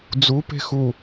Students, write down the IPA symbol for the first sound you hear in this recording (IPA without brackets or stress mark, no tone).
d͡z